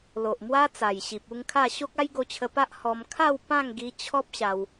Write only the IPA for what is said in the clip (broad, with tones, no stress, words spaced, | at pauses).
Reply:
lo˨ʔmwa˦ t͡sa˨˩jɕi˨p̚u˥˧ŋkʰa˥˧ ɕo˦k̚a˦j ɡo˧t͡ɕʰə˧pa˦ʔ hɔ˧m kʰa˥˧w pã˥˧ŋɡi˧ t͡ɕʰɔ˦p̚ɕa˧w